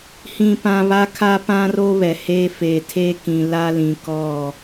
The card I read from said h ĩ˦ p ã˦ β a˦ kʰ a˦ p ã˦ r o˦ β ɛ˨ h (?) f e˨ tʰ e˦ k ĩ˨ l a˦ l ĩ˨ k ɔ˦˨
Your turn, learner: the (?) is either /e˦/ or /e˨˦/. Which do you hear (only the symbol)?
e˦